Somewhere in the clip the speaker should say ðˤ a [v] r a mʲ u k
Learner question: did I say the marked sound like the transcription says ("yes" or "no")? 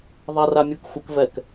no